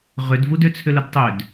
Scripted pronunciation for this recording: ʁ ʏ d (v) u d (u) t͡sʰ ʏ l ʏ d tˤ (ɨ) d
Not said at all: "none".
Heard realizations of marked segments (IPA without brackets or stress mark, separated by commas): v, ʏ, ʏ